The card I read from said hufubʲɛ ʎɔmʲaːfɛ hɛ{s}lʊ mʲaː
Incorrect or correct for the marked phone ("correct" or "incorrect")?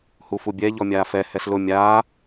correct